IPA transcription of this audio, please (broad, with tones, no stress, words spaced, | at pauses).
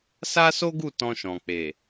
sa˦so˦ɡu˦˨ tɔ̃˧ʃɔ̃˨ k͡pe˨